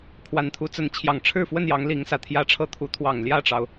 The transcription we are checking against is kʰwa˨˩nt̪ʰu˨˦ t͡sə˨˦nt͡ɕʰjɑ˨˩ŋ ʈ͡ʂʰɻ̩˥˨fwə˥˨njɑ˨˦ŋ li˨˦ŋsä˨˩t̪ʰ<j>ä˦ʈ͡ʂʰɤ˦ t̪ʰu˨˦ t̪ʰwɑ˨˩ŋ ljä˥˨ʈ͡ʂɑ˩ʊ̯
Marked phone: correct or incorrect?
correct